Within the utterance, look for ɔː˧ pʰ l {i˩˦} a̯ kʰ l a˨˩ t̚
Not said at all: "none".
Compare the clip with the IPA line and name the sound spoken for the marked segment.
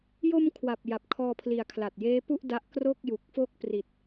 i˩˦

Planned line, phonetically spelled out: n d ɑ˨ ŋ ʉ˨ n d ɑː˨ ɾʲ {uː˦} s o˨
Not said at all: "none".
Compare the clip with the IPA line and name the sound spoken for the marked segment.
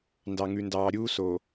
uː˦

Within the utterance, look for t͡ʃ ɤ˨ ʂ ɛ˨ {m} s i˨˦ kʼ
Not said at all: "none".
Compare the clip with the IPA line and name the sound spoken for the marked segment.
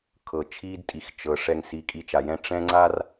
ŋ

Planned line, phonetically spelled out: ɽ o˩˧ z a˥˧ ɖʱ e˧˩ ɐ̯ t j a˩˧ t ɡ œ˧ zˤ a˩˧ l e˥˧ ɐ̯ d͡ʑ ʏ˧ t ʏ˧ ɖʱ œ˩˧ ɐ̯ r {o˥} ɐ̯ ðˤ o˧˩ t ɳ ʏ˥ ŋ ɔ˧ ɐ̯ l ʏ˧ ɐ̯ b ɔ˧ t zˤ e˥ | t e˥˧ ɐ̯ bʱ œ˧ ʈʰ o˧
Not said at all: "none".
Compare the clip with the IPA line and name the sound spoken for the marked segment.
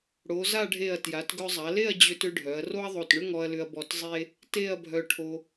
o˥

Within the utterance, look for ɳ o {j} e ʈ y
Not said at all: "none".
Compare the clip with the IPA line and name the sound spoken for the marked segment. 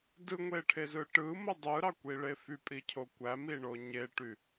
ɲ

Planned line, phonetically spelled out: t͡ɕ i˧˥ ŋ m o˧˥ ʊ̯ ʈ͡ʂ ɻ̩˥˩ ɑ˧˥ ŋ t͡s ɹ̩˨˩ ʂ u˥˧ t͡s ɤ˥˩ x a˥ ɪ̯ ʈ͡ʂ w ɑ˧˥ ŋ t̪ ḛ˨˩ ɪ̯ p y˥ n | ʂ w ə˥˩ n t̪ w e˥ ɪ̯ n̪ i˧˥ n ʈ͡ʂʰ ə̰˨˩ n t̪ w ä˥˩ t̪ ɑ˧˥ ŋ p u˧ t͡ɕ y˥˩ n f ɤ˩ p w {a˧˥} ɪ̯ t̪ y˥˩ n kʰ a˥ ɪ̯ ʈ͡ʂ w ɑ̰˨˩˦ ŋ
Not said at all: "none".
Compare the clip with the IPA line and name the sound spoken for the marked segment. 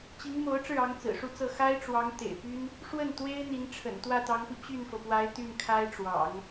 a˧˥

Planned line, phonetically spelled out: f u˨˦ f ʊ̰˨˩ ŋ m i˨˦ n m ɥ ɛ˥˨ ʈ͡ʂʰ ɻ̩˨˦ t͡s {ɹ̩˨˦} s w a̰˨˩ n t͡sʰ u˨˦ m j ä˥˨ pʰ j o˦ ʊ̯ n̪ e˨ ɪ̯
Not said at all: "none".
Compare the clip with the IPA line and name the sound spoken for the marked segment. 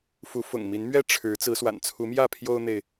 ɹ̩˨˦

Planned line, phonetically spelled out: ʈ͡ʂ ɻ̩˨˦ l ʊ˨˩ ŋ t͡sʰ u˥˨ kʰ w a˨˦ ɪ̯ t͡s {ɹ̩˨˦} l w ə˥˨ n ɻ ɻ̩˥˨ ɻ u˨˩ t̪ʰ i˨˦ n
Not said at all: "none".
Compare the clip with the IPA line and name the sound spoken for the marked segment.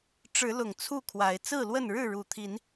ɹ̩˥˨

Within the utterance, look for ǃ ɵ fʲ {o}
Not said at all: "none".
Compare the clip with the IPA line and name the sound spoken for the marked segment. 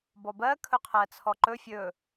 ɵ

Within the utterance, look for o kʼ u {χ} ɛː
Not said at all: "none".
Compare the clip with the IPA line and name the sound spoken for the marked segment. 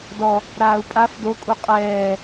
qʼ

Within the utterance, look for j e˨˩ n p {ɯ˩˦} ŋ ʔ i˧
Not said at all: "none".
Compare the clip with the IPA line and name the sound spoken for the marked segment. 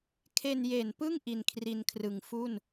ɯ˥˩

